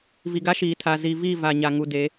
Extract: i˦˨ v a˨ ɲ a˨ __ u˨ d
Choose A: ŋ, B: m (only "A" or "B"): A